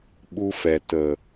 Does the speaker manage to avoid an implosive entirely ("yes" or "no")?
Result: no